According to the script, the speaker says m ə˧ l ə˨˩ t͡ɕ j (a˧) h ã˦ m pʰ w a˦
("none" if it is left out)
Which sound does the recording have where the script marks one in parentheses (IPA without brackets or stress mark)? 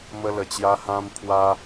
a˧